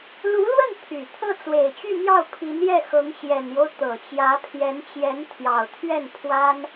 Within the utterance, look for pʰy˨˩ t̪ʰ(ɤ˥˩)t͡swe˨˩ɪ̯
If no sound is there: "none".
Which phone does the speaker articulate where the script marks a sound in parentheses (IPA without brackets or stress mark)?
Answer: ɤ˥˩